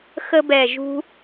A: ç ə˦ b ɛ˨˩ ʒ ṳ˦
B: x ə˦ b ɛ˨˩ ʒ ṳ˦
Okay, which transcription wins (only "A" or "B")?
B